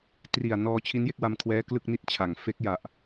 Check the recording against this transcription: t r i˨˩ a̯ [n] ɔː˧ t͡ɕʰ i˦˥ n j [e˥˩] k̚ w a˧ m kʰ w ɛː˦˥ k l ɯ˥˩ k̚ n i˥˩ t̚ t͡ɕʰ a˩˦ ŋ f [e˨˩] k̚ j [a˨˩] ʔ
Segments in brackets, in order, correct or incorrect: correct, correct, incorrect, correct

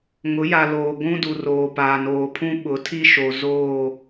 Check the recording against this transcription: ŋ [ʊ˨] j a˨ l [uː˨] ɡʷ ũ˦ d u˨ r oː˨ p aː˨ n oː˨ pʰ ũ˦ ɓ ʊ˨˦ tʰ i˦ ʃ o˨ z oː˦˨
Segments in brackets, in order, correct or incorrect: incorrect, incorrect

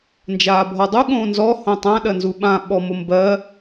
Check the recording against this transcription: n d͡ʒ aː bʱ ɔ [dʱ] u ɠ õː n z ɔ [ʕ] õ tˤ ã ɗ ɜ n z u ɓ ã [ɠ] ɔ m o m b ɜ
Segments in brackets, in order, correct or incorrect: incorrect, incorrect, incorrect

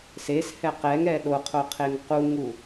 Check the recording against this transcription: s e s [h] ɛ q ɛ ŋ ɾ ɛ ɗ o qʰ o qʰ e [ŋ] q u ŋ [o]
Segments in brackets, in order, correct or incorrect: correct, correct, incorrect

